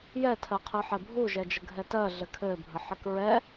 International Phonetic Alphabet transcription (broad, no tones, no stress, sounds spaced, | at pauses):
j ɛ tʰ ɜ qʰ ɯ ħ ɛ bʱ u ʒ ɛ d͡ʒ ə ɡʱ ɛ t ɜ ɮ ɘ kʰ ɘ bʱ ə ħ ɘ k ɹ ɛ